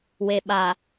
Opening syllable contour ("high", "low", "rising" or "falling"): low